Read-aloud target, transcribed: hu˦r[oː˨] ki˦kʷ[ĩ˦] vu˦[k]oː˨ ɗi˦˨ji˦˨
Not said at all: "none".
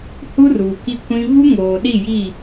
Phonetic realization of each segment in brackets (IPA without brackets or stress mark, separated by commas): uː˨, ĩ˦, ŋ